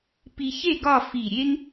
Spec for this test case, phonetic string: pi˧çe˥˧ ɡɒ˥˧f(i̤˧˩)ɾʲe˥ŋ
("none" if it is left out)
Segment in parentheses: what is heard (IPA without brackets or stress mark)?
i˧˩